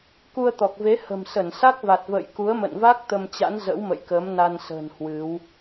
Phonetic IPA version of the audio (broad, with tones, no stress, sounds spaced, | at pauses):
k u˧ ə̯ t̪ ɔ˨˩ k̚ v e˨˦ h ə̤˨˩ m s ə˧˩ n s a˦˥ k̚ v a˨˩ t̚ v ə̰ː˧˨ j k u˨˦ ə̯ m ə̰˧˨ n v a˦˥ k̚ t̪ ə˧ m t͡ɕ a̰˧˥ n z ə̰˧˥ w m ə̰˧˨ j k əː˨˦ m n a˧ n s ə̤ː˨˩ n h w ɨ˨˦ w